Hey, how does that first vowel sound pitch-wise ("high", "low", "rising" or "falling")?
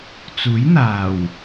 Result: rising